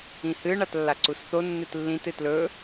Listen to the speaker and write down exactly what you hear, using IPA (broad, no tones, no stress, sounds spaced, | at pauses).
ĩ h ɨ ɳ a t lː a ǀ u s θ o nː ɨ t lː ĩ t ɨ t l ɵ